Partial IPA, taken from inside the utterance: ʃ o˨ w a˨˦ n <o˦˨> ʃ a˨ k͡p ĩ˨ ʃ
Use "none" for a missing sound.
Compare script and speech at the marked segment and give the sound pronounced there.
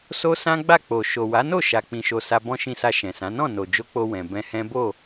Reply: o˦˨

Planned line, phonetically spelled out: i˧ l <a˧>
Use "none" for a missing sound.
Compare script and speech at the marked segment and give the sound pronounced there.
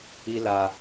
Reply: a˧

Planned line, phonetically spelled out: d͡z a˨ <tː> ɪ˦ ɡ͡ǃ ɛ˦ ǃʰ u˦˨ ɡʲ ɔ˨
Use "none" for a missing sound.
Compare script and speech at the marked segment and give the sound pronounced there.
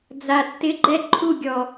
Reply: tː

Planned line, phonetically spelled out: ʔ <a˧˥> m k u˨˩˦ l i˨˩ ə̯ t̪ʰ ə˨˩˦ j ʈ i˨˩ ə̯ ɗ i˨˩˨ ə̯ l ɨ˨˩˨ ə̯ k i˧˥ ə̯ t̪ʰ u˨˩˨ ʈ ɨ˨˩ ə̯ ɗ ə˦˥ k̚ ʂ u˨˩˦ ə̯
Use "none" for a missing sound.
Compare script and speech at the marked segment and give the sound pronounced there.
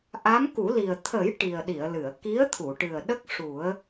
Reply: a˧˥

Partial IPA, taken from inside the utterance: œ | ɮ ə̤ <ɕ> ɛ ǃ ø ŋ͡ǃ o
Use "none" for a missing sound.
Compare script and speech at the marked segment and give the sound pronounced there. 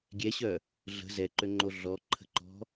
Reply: z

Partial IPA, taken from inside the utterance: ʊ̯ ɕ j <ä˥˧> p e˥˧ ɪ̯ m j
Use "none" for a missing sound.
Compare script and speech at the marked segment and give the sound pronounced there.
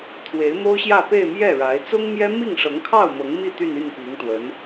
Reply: ä˥˧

